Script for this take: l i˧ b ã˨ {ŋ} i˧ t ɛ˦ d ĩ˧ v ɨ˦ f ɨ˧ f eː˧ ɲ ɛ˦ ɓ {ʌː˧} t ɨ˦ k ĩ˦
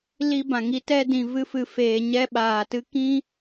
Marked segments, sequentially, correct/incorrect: correct, incorrect

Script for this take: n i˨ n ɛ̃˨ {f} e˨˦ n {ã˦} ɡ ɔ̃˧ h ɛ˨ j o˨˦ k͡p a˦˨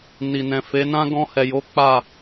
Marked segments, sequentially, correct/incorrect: correct, correct

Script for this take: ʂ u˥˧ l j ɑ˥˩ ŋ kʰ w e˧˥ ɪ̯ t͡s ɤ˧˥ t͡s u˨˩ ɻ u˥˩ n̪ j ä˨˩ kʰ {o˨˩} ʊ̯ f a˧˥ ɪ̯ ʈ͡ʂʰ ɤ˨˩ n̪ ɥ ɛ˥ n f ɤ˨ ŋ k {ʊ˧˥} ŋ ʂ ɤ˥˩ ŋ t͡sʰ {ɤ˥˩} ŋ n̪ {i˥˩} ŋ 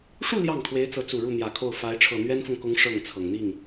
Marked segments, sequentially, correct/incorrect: incorrect, correct, incorrect, correct

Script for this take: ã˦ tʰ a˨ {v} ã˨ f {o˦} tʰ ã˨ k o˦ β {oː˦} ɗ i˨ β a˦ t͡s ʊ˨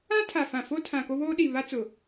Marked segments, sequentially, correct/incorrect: incorrect, correct, correct

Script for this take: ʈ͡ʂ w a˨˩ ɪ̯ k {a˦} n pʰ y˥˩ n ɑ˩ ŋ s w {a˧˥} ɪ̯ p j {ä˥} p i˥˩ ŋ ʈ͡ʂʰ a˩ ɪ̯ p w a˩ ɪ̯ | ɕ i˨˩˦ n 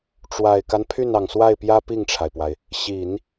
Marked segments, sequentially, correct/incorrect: correct, incorrect, correct

